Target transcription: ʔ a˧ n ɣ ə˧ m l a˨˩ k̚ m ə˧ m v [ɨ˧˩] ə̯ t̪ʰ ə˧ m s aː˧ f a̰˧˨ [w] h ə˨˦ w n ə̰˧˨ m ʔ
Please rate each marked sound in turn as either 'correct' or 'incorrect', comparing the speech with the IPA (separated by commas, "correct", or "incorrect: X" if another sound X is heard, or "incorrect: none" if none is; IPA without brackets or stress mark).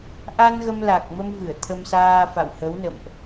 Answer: correct, correct